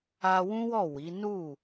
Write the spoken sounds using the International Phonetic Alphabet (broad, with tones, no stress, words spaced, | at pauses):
a˧wũ˦wɔ˦˨ wi˨˦ nu˦˨